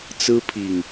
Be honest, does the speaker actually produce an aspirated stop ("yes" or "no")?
yes